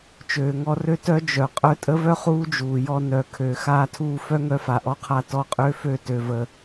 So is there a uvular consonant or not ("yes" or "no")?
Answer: yes